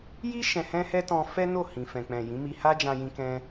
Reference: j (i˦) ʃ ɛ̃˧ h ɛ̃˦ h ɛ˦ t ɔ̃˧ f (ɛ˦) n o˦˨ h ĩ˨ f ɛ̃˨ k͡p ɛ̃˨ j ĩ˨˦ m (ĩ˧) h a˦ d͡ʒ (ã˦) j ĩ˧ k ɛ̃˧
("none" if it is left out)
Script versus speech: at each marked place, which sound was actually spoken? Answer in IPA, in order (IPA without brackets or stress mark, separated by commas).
i˦, ɛ˦, i˧, ã˧